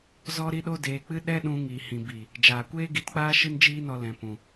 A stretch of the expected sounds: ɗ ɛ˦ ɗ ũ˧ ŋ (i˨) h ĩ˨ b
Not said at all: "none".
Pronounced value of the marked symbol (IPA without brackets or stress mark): i˨